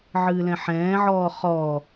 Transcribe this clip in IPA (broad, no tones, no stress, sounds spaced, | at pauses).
ʕ ɨː l ɛ̃ ħ ɛ̃ː ʕ ɔː χ ɔː